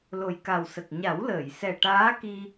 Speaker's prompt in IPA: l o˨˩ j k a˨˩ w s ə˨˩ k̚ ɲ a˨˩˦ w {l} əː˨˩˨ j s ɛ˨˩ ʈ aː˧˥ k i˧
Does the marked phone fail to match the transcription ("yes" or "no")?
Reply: no